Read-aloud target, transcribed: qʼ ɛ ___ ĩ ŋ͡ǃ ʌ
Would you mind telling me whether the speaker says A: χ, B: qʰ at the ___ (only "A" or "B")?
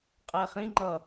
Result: A